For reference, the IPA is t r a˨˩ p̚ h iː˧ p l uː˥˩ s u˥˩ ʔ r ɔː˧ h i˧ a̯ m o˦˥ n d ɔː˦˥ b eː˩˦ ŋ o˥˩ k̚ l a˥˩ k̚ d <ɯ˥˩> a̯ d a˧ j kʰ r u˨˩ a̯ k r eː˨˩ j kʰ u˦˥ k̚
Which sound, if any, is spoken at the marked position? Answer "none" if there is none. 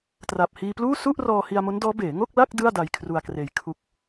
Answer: ɯ˥˩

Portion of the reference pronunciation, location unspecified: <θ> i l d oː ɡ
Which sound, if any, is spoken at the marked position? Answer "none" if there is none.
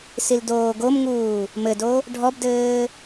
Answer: s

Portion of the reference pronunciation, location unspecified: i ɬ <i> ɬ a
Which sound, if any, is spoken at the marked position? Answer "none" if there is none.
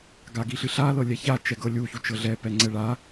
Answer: ɨ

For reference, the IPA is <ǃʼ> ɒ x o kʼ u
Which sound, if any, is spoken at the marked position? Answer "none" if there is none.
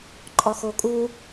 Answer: ǃʼ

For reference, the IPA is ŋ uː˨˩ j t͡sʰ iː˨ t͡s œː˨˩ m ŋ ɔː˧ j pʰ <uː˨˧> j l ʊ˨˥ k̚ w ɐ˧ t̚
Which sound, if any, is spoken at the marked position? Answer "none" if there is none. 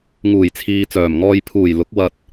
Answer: uː˨˩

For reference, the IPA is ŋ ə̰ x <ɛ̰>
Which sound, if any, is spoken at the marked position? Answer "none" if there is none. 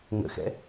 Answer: ɛ̰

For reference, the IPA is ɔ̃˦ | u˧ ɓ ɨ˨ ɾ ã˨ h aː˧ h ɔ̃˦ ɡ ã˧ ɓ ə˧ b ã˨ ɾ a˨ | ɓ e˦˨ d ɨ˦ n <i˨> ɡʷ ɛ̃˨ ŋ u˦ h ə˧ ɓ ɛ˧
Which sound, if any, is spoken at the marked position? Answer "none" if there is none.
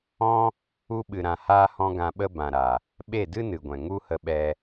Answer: ɨ˨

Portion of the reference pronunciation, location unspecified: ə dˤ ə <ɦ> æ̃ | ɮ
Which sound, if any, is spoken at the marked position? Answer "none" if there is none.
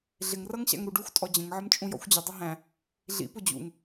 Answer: ɦ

